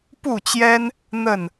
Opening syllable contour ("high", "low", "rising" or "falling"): falling